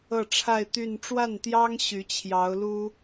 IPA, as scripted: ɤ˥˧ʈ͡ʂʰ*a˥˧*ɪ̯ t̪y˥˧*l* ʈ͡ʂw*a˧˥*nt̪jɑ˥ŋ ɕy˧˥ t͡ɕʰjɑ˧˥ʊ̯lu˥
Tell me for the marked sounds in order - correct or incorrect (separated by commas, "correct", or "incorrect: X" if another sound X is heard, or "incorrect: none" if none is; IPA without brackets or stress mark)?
correct, incorrect: n, incorrect: a˥˩